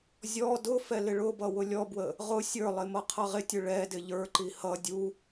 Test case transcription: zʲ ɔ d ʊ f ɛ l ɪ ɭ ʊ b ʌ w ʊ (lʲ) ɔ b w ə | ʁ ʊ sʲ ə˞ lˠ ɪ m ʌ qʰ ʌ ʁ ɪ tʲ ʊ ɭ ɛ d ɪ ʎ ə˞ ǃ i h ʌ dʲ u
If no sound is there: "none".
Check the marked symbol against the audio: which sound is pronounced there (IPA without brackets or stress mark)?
lʲ